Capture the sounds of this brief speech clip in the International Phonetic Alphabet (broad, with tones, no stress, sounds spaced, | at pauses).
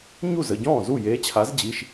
ɲ u˥˩ z ə˩˧˩ ɟ ɔ̃ː˥˩ z u˥˩ j eː˨˥ t͡ɕʰ a˨˥ z d͡ʑ i˩˧˩ ʃ